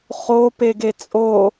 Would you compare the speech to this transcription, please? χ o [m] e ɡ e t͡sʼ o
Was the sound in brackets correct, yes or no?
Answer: no